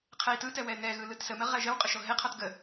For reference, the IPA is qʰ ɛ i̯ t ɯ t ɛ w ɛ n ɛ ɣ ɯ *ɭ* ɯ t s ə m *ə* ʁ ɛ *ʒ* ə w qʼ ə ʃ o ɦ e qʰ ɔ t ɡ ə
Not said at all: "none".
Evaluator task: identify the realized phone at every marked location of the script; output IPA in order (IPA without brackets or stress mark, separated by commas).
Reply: l, ə, ʒ